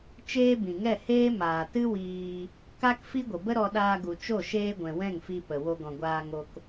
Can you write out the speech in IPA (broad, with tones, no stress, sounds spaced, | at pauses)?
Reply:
t͡ʃ eː˦ b ĩ˨ ŋ ɛ˦˨ h eː˦ m aː˨ t ɨ˦ w iː˧ | k a˦ k f i˦ ɡʷ ə˨ b ə˦ ɾ ɔ˧ ɗ aː˧ ɡ u˨ t͡ʃ o˦˨ ʃ eː˧ ɡʷ ɛ̃˨ w ɛ̃˦˨ ŋ f i˧ p ə˨ w o˧ ɡ ɔ̃˨ ɡʷ aː˧ ŋ o˧ k